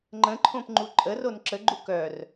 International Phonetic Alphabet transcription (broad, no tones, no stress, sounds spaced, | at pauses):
ŋ͡ǃ ə̃ ǃʰ õ p ŋ͡ǃ u ǃʼ ə r o n ǁ ə ɡ͡ǃ u k œ r